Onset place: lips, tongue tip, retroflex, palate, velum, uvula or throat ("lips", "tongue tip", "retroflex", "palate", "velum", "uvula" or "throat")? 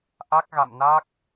throat